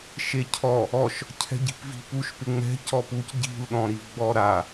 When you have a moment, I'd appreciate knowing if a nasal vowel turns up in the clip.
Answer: yes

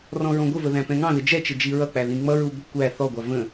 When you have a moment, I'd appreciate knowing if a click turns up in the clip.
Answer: no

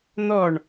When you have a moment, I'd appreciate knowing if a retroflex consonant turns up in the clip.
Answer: yes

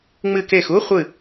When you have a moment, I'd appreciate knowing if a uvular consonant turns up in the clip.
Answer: yes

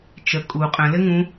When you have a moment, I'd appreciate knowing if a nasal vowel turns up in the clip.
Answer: yes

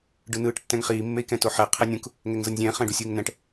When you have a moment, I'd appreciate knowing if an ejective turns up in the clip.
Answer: no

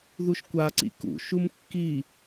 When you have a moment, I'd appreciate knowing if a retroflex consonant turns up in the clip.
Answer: no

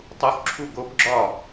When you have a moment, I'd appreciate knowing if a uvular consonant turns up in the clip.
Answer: no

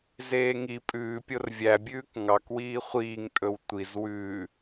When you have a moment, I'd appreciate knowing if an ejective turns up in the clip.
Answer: yes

